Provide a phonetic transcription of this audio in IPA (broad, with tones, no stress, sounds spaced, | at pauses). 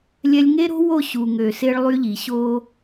lʲ ɛ˦ lʲ ŋ e˦ ɾ o̤˦ w o˦˨ ɕ u˨ ŋ ø˨ s e˦ ɭ lˠ y˦ ʎ i˨ ɕ o˦